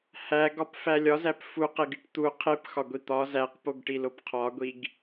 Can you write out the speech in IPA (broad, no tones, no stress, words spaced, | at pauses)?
hæɡɒpfæ lʲɒzæp fuqeɡiʈ t̪u qʰepxɒɡʷi t̪ɒ zæqpoɡʈilop qʰɒɡʷiɡ